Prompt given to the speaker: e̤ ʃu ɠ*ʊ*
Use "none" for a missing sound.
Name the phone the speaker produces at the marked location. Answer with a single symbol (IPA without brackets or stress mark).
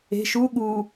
u